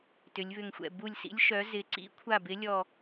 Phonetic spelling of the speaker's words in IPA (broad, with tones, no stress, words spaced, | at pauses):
tʏ˩˧lʲβʏ˧˩ŋxʷɛ̰˧˩ bu˧˩lʲsḭ˨˥lʲ ʃœ˩˧zɪ˩˧ǀḭ˨˥kʷʰa˧˩ bɪ˨˥lʲɔ˧˩